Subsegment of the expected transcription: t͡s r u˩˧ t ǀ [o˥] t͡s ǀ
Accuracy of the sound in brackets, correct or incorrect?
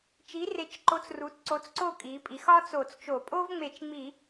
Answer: incorrect